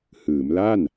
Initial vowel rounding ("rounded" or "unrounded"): unrounded